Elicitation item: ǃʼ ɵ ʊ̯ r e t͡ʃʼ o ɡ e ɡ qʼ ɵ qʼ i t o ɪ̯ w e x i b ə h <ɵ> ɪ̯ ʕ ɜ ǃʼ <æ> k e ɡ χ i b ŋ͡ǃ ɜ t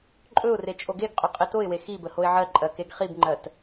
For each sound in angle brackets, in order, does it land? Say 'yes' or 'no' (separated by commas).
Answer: no, no